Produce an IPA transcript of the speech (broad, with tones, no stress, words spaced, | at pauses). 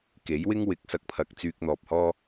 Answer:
ke˨˥jwɪ˥ŋ wɪ˨˥k̚sɐ˨k̚pʰɐ˨k̚ t͡syː˧k̚n̪ɔː˨p̚hɔː˥